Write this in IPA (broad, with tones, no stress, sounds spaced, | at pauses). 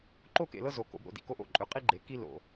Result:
ǃ o˦ k ḛ˨ l ɤ˦ z o˨ k o̰˨ b ɾ o̰˨ d ḭ˨ k o˦ ʔ o̰˦ ǃʼ ø˨˦ qʼ i˦ ɡ͡ǃ e˨ k i˦ l o̰˨